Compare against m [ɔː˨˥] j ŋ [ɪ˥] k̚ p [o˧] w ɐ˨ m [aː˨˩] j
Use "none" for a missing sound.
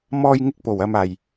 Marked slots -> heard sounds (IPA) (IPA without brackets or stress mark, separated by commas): ɔː˧, ɪ˧, o˨˩, aː˨˩